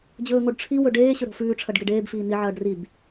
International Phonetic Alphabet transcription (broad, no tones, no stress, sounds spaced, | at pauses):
d͡ʑ ɵː ŋ o ɖ ʈ͡ʂʰ i w ɵ ɖ eː ɕ ɵ ɾ o̤ f ʉː ʈ͡ʂʰ ɐ ɖ ɡ e ɖ eː b f iː n i ʕ ɐː ɖ r i b